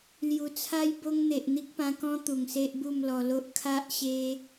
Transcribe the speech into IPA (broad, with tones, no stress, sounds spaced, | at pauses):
l j u˨˩ t͡sʰ a˦ j b o˦ ŋ n̪ e˨ ʔ n̪ i˦ k̚ p ã˧ k ɔ̃˦ t̪ u˨˩ ŋ s e˦ ʔ b u˥˧ m l ɔ˧ l o˦ ʔ kʰ a˦ ʔ ɕ e˦